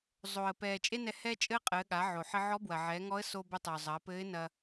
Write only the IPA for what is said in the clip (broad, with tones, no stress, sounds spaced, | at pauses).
zˤ o˩ ə̯ p ɛː˩ t͡ʃʼ e˥ n ɛ˧ h ɛː˥ t͡ʃʼ ɘː˥ qʼ ɘː˩˧ ɠ a˩˧ ʕ o˩ ħ ɘ˧ ʕ ɔ˧˥ b w ɐ˩ ʕ ɛ˩˧ ŋ ɔ˧˥ ə̯ s o˧ b ɘ˧ tˤ ɘ˩ ʊ̯ zˤ ɐː˩˧ p ɘː˧˥ ɪ̯ n ɐ˧